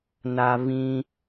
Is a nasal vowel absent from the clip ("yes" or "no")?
no